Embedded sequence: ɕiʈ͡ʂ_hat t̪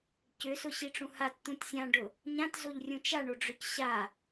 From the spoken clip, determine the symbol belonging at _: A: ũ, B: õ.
A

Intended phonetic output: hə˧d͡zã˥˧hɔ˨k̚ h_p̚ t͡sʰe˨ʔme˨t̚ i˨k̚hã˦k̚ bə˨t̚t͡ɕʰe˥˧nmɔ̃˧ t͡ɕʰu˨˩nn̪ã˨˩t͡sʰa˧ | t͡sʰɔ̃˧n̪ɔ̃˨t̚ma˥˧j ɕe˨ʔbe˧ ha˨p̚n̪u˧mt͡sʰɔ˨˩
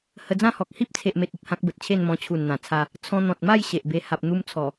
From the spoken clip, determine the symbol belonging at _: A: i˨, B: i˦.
B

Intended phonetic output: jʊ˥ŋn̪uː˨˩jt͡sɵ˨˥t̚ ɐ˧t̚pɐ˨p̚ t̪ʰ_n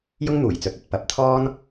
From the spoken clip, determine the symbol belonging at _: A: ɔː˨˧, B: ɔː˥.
B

